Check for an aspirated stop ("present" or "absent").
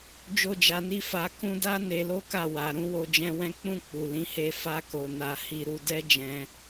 absent